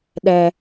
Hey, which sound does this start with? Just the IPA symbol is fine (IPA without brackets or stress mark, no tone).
ɗ